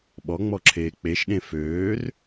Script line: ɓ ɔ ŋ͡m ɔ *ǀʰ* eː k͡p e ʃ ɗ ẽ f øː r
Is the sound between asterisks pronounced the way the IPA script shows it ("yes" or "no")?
no